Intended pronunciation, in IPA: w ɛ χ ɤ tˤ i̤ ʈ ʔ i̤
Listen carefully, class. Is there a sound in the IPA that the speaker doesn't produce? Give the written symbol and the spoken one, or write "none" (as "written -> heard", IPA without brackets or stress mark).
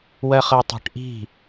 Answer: ɛ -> ɜ